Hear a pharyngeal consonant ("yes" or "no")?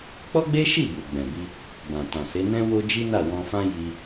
no